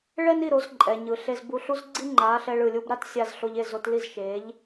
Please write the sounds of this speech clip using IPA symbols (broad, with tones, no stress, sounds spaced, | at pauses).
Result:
ɭ ɛ˥ n i˥˩ ɾ o˩˥ z ǃʼ ɛ˩ ɲ ɯ˩ ɬ e˧ z b u˧ ɬ u˥ z ɡ͡ǀ i˥ ŋ͡ǃ a˩˥ ɬ ɛ˧ ɭ ɯ˩ lʲ u˧ b ɾ a˥ t sʲ a˧ z ɬ o˧ ʎ e˥˩ z o˧ t l i˥˩ z ʃ e˩˥ ʎ